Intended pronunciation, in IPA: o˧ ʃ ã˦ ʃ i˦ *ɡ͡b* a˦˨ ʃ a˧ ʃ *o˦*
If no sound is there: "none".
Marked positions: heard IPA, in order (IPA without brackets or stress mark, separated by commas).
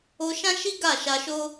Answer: ɡ, o˦